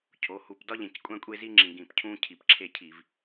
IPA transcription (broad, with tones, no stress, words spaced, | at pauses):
cʰo˩˧hu˨˩p dɒ˦ʎẽ˨˩c kʷʼæ̃˦kʷʼe˦zi˦ŋ͡ǁĩ˨˩ ɡĩ˨˩p cʰũ˦ cʰi˨˩pǁʰe˦˨cʰi˧˩˧v